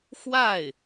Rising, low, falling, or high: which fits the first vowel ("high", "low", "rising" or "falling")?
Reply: falling